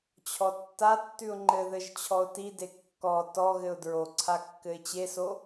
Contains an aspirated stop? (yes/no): yes